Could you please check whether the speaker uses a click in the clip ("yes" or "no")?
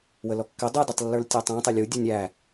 no